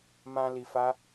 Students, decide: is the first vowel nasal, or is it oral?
nasal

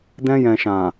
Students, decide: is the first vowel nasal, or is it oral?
nasal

